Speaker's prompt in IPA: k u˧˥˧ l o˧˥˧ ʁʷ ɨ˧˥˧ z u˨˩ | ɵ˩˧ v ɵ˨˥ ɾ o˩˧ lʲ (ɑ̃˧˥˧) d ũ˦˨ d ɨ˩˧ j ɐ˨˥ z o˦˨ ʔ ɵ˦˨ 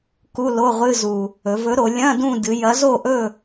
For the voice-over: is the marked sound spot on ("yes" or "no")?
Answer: no